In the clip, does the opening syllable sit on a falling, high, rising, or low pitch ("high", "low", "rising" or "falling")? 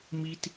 high